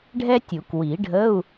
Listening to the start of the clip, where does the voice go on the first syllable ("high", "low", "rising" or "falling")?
high